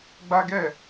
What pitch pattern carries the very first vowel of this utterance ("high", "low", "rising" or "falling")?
high